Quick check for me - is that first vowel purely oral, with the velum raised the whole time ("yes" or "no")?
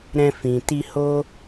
no